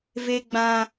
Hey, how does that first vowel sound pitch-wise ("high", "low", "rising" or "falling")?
high